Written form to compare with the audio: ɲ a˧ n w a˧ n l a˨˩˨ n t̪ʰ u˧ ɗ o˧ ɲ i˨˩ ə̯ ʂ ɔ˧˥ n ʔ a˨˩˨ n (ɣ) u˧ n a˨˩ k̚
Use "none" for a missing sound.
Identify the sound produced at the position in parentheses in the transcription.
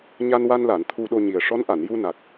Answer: j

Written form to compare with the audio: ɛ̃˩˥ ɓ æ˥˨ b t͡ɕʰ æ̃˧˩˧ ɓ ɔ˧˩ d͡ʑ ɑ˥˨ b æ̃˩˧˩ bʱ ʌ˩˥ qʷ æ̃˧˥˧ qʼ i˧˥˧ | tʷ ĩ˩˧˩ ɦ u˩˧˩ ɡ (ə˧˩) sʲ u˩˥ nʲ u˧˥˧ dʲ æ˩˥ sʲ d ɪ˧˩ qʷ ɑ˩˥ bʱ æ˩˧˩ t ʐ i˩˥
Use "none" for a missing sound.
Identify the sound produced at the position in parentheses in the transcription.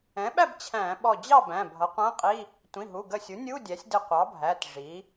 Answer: ə˧˩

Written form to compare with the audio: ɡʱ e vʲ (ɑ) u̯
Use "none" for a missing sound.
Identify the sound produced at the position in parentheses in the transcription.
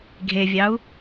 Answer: ɑ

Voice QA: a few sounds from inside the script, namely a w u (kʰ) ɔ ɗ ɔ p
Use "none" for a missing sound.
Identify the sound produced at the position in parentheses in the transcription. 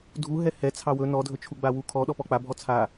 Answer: kʰ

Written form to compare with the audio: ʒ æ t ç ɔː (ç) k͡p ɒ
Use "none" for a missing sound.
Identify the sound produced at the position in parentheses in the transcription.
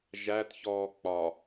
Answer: none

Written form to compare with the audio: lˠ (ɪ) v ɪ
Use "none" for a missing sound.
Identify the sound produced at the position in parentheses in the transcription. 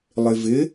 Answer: ɪ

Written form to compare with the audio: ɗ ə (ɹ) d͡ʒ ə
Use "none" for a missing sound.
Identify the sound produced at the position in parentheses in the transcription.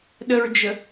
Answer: ɹ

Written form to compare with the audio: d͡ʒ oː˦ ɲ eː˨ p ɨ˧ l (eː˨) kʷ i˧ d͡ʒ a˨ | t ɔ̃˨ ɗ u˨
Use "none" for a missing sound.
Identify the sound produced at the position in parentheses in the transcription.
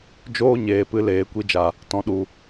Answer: eː˨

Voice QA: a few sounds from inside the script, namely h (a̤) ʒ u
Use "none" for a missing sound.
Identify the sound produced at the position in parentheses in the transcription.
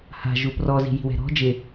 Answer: a̤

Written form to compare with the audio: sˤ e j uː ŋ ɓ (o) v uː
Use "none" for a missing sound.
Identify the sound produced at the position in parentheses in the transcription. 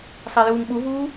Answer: u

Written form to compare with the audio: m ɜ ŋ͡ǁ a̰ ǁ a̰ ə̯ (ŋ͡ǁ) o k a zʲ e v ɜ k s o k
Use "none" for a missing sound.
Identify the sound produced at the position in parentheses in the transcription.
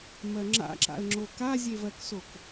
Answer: ŋ͡ǁ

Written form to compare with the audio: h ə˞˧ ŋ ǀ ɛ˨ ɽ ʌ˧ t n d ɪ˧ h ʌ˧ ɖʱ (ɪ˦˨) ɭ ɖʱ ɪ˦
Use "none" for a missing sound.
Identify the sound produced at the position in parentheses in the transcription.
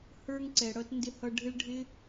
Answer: ɪ˦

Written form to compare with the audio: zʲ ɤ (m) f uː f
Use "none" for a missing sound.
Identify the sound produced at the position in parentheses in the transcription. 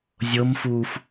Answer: m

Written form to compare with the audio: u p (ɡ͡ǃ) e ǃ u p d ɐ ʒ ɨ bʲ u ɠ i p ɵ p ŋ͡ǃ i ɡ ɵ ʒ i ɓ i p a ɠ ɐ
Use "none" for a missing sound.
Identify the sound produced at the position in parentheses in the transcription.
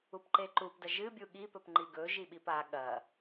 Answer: ǃ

